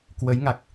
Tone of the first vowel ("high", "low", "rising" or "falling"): rising